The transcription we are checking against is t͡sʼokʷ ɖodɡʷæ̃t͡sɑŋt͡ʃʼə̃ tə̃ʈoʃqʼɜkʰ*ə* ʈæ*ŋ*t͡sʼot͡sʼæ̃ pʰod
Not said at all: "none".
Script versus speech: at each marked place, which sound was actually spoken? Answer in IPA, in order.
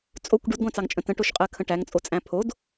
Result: ə̃, ŋ

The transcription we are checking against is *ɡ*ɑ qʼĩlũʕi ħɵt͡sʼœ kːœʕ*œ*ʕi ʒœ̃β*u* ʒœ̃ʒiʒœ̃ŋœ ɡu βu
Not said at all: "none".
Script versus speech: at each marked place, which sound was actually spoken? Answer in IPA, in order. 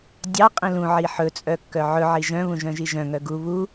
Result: dʲ, ɵ, ũ

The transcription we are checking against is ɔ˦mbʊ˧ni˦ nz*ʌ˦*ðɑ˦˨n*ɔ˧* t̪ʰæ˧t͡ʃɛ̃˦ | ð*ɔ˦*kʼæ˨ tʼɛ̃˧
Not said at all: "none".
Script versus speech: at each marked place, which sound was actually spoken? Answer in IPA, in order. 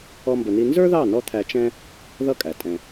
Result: ə˞˦, ɔ˧, ʌ˦

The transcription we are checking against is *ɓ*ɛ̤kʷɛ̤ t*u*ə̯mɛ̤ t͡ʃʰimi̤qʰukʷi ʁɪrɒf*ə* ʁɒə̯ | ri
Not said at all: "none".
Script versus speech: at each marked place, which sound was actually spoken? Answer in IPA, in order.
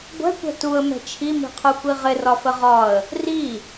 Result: ɡʷ, u, ə

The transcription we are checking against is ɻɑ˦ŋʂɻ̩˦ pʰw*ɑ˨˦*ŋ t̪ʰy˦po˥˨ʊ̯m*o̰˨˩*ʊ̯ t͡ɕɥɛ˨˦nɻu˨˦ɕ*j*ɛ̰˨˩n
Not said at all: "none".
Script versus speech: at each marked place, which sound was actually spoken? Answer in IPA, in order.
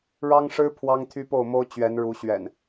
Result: ɑ˦, o˦, ɥ

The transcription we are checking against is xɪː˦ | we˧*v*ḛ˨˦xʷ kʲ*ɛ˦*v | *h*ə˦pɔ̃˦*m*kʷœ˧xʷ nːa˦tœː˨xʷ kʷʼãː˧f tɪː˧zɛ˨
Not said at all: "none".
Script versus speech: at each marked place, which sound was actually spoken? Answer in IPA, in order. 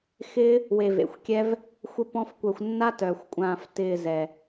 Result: v, ɛ˦, xʷ, f

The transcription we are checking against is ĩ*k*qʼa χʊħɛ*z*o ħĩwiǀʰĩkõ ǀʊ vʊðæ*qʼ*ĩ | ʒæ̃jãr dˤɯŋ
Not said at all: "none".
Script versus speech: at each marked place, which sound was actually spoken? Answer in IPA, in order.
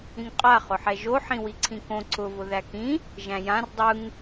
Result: ŋ, ʒ, k

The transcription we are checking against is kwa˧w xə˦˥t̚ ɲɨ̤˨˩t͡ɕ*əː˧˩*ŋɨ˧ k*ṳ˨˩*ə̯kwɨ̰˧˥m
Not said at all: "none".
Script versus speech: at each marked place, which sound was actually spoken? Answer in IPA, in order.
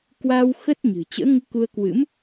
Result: ə̰ː˧˥, u˧

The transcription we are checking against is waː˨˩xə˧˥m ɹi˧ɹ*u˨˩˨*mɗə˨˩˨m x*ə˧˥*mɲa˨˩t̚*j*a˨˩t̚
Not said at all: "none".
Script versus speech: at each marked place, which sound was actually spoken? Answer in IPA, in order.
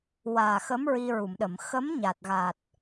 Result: u˨˩˨, ə˧˥, ɣ

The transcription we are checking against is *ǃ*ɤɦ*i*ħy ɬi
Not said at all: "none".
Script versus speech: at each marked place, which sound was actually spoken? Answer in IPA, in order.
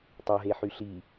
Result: tˤ, e

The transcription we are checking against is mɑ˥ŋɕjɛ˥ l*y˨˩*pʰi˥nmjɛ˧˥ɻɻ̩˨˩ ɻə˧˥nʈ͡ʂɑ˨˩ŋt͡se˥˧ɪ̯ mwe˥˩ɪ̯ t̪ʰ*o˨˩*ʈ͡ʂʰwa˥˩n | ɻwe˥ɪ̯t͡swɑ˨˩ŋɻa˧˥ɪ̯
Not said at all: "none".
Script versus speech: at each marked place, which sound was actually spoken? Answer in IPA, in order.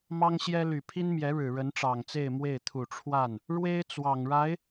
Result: y˨˩, u˨˩

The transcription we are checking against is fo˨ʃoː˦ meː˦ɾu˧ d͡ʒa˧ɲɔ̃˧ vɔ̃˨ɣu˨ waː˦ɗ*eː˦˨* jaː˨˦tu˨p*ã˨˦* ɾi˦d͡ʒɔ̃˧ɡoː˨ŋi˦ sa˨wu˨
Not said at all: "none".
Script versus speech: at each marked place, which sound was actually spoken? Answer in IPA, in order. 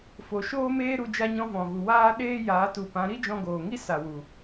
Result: eː˦, ã˨˦

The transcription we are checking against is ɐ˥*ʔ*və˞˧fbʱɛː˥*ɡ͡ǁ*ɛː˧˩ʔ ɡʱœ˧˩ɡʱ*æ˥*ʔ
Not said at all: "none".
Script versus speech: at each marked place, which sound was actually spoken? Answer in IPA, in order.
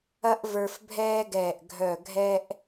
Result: ʔ, ɡ, ɛ˥

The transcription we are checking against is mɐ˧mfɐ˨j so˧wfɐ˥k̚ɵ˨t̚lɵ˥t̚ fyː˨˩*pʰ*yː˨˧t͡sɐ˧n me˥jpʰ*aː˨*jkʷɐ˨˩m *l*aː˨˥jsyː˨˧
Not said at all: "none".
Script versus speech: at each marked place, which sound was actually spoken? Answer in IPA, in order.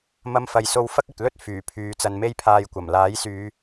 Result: pʰ, aː˧, l

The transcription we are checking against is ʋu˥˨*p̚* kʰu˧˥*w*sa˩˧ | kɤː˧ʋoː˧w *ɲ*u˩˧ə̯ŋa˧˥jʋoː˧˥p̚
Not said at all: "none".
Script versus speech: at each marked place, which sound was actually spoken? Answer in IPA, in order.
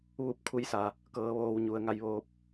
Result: p̚, j, ɲ

